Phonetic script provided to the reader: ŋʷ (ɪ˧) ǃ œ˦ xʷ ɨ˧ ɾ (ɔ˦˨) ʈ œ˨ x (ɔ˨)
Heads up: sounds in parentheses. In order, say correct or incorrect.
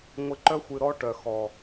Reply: correct, incorrect: ɔ˦, correct

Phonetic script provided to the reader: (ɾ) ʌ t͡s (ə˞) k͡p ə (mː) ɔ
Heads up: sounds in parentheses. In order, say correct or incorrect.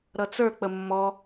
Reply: correct, correct, correct

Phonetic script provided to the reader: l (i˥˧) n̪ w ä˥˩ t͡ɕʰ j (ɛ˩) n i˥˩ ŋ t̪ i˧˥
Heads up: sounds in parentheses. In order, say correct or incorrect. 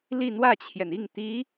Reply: correct, correct

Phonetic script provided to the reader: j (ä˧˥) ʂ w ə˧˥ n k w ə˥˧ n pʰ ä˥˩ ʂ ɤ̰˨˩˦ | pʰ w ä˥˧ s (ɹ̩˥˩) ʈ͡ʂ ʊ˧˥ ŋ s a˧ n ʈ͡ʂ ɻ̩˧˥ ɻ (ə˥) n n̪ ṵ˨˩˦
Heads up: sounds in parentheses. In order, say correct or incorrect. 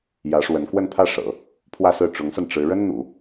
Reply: correct, correct, correct

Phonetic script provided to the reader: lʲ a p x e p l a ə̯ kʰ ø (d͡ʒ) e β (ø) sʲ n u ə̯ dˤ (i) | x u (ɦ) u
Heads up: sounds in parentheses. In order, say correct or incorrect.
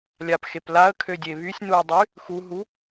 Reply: incorrect: dʲ, incorrect: y, incorrect: y, correct

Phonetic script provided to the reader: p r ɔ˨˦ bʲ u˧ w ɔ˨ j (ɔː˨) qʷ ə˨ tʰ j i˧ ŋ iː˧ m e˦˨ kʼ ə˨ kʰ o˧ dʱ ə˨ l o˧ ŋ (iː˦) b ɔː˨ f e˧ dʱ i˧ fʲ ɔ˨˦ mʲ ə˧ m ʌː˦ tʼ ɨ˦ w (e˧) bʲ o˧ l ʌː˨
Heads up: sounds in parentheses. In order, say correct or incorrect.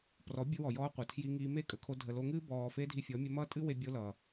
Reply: incorrect: ɔː˧, incorrect: ɨː˦, correct

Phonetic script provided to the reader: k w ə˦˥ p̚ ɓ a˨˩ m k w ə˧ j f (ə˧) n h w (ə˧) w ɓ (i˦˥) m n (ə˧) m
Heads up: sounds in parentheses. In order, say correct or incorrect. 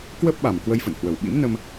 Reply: incorrect: ə̰˧˨, incorrect: ə˨˩, incorrect: ḭ˧˥, correct

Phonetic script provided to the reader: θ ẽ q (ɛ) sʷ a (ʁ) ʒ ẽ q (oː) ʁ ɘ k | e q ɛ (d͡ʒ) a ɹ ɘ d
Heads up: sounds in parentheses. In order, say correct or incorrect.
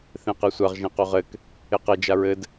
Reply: correct, correct, incorrect: o, correct

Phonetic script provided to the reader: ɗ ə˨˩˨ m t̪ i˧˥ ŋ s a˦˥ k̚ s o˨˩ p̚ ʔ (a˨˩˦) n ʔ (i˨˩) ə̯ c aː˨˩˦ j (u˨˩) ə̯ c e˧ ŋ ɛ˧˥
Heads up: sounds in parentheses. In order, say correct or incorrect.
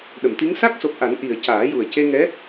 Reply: correct, correct, correct

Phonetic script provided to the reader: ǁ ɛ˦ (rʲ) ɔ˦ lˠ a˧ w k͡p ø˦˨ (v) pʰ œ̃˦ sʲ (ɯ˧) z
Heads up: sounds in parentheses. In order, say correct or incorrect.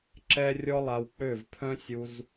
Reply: correct, correct, incorrect: u˧

